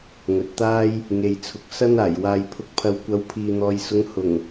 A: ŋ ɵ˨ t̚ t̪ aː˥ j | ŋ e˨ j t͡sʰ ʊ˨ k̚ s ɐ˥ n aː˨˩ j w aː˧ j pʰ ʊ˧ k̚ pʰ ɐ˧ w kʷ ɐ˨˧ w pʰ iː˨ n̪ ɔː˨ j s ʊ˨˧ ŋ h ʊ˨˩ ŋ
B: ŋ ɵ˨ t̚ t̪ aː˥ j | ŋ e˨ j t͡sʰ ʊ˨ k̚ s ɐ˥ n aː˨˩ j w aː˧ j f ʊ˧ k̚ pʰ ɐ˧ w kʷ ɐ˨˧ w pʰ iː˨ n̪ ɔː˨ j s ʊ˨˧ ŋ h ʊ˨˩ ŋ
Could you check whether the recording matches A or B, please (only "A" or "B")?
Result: A